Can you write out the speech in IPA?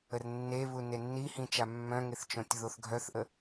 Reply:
ə r nː e β u n e nː i h ĩ t͡ʃ a mː œ̃ ŋ e θ t͡ʃ õ tʲ ð o θ ɡʱ œ θ ʔ ə

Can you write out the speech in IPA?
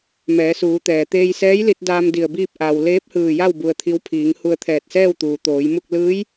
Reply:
m ɛː˩˧ s uː˩˧ t̪ ɛː˩ t̪ eː˧ j s ɛː˧˥ j l i˧ t̚ d aː˧ m d i˧˩ ə̯ b iː˥˨ p̚ ʔ a˧ w l eː˧˥ p̚ h ɯː˧˩ j a˥˨ w b u˧ ə̯ t̪ʰ i˧˥ w pʰ iː˩˧ ŋ h u˧ ə̯ t̪ʰ ɛː˧˩ t̚ s ɛː˥˨ w t̪ uː˩ t̪ oː˩˧ j m u˥˨ k̚ l ɯː˧˥ j

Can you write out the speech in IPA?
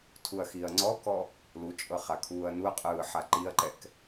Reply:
tʰ u ɐ̯ x i ɐ̯ ŋ͡ǀ ɔ k ɔ | l u t͡ʃʼ ɤ χ a kʰ uː ɐ̯ n u ɐ̯ qʼ ɯː ħ a ǃ i ɐ̯ ǃ ɛ k

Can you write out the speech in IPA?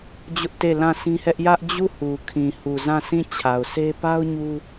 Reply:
d͡ʑ ʊ˦ ʔ t e˦˨ l ã˦˨ sʰ ĩ˦ h ɛ˦ ʔ j ä˦ ʔ d͡ʑ u˦˨ h u˨ kʰ ĩ˨ h u˨ z ã˦˨ s ĩ˦˨ t͡ɕʰ a˨ ʊ̯ s e˦ p a˦ ʊ̯ ɲ u˦

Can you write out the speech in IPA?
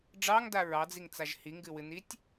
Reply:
ɖ͡ʐ ɑ ŋ d a ɹ ɑ d͡z i ŋ t͡s a ʒ h i ŋ ɡ ɨ w ɨ n i tʲ

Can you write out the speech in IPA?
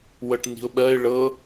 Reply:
w ɤ ʈ n i̤ ʊ̯ ɓ ɜ ɪ̯ ɭ ɤ

